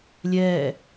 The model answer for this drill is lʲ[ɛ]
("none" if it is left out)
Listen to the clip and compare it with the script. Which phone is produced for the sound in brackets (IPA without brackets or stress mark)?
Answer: ɛː